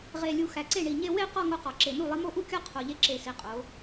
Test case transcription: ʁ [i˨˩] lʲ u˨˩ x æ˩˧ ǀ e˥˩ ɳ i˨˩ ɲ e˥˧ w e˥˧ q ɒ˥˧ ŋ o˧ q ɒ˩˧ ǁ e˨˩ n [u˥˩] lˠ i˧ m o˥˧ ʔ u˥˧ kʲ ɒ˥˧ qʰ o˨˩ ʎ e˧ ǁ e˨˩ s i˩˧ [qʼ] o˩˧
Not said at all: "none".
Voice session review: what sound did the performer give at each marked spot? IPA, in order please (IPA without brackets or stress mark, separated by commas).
e˨˩, u˥˩, qʼ